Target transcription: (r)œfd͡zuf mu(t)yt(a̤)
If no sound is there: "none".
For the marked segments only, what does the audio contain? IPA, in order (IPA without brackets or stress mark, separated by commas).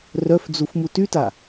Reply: r, t, a